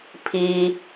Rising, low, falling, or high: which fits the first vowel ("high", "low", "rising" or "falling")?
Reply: low